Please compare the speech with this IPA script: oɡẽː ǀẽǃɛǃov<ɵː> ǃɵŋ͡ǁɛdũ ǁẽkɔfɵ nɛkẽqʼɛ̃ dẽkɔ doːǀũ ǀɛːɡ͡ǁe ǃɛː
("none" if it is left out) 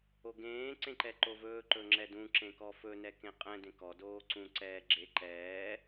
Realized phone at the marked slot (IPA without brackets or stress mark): ɵː